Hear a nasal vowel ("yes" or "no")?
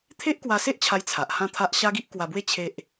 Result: yes